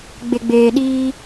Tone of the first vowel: low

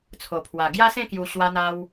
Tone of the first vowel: low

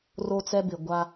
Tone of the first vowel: high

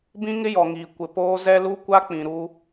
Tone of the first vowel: high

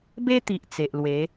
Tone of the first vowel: high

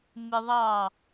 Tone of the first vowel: high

